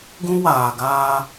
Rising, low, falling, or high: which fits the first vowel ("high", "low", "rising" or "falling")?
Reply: high